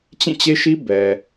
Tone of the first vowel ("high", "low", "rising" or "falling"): falling